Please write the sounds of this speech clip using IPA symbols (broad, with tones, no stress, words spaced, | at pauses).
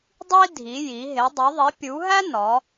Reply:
dˤi˥dʱi˨˦ ji˨˦ ɦe˨˦dˤu˨˦ ðˤi˨˦pʲu˨˦ɦæ˥ nɒ˨˦